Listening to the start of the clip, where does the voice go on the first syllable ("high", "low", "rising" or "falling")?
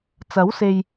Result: rising